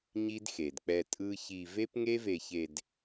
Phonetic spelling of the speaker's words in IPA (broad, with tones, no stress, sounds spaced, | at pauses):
ɲ i˦ d x e˨ d k͡p ɛ˧ tʼ ɯ˦ ç i˧ v e˦ p ŋ e˦ v e˧ ç e˧ d